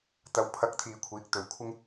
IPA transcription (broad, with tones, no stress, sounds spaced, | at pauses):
t̪ ɐ˨ w pʰ ɐ˧ k̚ t̪ʰ iː˨ kʷʰ iː˨˥ k̚ t̪ ɵ˨˧ ɥ kʷʰ ɪ˥ ŋ